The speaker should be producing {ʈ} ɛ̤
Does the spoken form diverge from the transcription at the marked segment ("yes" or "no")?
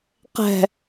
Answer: yes